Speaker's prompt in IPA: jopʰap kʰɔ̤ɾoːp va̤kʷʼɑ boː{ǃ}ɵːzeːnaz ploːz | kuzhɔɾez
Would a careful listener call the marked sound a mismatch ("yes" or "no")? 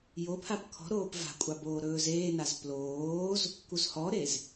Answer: yes